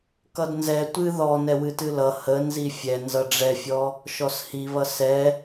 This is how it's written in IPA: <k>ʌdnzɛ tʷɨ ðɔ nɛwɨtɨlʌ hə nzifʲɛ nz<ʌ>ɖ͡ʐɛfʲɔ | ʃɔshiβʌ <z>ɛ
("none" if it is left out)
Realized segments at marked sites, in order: k, ʌ, s

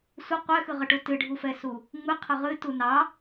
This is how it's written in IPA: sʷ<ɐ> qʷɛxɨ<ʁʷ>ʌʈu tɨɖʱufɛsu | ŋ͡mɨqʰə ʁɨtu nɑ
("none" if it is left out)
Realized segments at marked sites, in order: ə, ʁ

